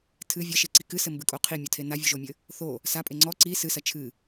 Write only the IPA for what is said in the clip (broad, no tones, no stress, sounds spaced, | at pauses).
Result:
tʰ ɨ vʲ ɐ ʃ e ǀ i k ɨ s ɘ m b ɨ kʼ o qʰ i mʲ o tʰ e n a vʲ u ʒ o mʲ ɘ | θ o | s a pʼ e ŋ͡ǀ ɔ ǀ i s ɨ s ɐ t͡ʃʰ ɨ